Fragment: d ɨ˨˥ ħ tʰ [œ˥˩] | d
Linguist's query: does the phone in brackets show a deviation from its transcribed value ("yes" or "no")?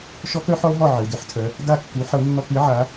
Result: yes